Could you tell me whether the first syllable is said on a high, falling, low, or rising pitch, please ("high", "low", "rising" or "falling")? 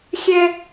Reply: high